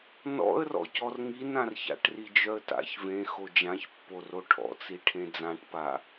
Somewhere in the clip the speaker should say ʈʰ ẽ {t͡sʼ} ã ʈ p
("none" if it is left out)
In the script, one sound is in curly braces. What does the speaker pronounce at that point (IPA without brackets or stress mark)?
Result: d͡z